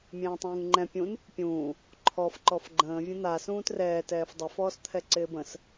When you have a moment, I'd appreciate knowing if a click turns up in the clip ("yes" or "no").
yes